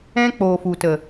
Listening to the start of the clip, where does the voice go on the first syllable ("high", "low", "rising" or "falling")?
high